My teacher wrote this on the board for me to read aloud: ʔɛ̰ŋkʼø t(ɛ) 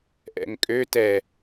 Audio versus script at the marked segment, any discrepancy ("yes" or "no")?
no